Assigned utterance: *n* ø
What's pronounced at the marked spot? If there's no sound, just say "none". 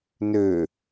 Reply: n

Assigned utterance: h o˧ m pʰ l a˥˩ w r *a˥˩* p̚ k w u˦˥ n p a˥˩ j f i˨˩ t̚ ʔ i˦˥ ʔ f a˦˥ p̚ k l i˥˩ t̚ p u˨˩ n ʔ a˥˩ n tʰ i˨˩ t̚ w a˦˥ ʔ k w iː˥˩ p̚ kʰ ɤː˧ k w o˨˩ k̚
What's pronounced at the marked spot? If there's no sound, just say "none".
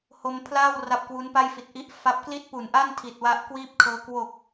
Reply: a˦˥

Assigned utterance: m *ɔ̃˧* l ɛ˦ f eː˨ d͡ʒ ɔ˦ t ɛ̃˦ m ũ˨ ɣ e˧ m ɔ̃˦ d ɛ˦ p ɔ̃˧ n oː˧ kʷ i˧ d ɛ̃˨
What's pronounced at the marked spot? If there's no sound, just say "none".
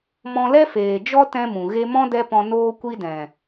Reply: ɔ̃˧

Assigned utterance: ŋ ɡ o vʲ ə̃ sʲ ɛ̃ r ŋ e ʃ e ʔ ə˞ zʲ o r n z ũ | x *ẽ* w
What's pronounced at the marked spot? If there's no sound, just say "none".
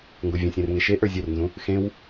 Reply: ẽ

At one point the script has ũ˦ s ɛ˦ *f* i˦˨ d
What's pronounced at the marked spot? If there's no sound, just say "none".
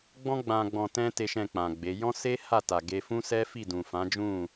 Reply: f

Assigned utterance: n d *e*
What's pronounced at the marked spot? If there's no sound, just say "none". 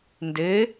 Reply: e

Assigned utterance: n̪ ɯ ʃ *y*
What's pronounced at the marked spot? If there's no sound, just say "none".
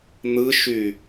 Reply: y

